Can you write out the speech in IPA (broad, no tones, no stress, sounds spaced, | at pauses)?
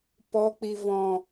p ɔ k͡p i v ɔ̃